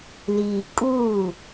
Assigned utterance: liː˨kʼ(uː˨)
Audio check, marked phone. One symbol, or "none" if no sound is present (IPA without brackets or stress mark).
uː˦˨